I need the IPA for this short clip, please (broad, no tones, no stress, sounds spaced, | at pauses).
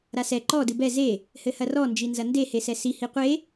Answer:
ɾ a s ɛ ǃ ɔ d ɨ b ɛ z e | h ɘ h ɐ r ɔ n d͡ʒ i n z ɐ n d e h e s ɛ s i h i qʷ e